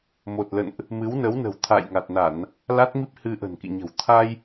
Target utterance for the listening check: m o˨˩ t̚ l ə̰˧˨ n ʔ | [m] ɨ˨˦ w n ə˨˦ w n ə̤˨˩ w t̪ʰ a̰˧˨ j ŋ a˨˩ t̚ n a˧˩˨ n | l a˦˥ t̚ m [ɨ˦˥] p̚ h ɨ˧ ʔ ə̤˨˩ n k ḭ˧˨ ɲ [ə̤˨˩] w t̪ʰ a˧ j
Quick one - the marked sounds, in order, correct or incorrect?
correct, incorrect: i˦˥, correct

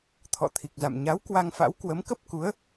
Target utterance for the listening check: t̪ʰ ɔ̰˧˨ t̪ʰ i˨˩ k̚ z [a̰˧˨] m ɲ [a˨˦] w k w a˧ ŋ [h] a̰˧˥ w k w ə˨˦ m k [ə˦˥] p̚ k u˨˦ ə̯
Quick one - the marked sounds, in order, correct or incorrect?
correct, correct, incorrect: f, correct

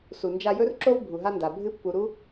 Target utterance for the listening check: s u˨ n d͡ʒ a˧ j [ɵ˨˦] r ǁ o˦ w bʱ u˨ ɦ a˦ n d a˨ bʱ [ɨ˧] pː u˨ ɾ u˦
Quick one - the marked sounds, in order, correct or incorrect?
incorrect: ɵ˦, correct

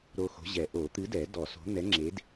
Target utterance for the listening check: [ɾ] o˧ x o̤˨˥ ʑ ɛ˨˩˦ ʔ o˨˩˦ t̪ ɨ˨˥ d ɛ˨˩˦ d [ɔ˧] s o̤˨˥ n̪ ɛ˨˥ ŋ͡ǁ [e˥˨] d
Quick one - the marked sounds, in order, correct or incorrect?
correct, incorrect: ɔ˨˩˦, incorrect: e˨˥

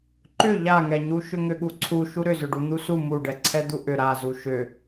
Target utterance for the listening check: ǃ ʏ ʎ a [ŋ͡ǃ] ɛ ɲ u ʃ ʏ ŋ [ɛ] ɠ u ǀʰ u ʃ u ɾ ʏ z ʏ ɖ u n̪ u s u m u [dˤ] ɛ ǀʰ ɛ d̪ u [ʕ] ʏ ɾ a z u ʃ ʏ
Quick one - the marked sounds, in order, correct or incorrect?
incorrect: ŋ, incorrect: ʏ, incorrect: ɖ, incorrect: ʔ

